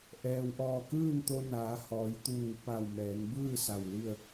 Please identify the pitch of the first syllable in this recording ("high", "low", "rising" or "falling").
low